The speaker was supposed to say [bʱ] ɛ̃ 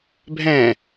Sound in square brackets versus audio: correct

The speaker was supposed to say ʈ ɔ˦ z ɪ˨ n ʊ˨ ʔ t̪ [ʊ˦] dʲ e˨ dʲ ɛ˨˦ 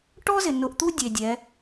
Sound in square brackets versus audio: incorrect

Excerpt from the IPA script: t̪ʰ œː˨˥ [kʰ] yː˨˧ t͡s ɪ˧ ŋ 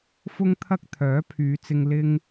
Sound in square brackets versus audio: incorrect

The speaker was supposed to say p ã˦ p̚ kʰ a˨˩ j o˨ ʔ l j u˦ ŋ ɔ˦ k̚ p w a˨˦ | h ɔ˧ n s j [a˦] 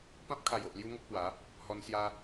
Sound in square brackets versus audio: correct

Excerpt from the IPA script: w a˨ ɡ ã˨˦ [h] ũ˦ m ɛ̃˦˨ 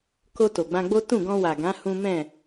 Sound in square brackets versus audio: correct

